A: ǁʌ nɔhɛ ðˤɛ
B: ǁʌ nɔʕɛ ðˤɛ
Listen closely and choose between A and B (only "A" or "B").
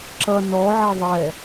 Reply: B